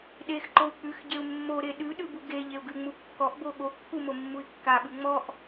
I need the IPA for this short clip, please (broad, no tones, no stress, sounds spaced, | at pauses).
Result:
ɗ e x ǃ o u̯ k͡p ʉ x ɟ e u̯ mː o ɾ e ɗ ʉ ɗ ʉ b u ɡ e ʎ e u̯ ɡ ʉ ŋ͡m u kː ɔ ʔ b o ɠ o kː u m o mː u i̯ kː a ɓ ʉ ŋ͡m ɔ ʔ